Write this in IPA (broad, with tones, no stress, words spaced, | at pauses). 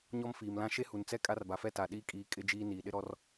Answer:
ɲɔ˦mfiː˨mlã˦ ʃe˦hu˨nt͡sɛ˦ kʼa˦rba˨fɛ˦ ta˨ɗiː˦kʼiː˨˦ kʼɪ˦d͡ʒiː˦ niː˨ɗɪ˦ɾɔ˦r